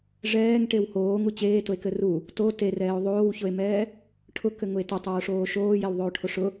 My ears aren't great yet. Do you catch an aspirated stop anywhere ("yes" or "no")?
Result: yes